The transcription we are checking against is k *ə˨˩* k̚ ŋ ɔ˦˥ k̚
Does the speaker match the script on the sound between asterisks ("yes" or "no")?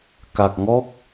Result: no